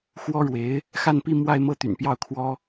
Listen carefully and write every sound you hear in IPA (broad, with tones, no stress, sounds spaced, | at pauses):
x w ɔ˥ ɻ w e˧˥ ɪ̯ | x a˥˧ n p i˥˧ m w a˥˧ ɪ̯ m ɤ˥˩ t̪ y̰˨˩ n p j ɑ˥˩ ʊ̯ kʰ w ɔ˥